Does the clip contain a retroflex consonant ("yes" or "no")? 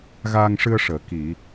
yes